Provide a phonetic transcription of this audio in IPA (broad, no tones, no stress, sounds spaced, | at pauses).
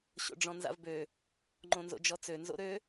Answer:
ɕ o̰ ɖ͡ʐ ɔ̃ n z a̰ v b ø | ŋ͡ǃ õ n z o̰ d͡ʒ ɔ t͡s ø n z o̰ ɾ ø